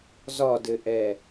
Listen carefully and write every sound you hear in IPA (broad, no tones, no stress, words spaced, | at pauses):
zɒdɘʔɛ